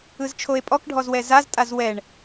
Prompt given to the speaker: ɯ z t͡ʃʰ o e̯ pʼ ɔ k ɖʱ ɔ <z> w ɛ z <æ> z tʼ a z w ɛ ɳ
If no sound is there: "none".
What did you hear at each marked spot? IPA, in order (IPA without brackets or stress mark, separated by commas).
z, a